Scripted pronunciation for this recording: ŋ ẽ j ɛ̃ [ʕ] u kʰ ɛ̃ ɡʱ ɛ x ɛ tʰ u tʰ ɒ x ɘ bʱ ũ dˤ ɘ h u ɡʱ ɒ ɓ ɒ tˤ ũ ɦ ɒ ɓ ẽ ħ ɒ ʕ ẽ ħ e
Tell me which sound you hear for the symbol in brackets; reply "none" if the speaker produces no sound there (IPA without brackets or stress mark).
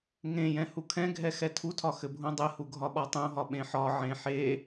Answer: h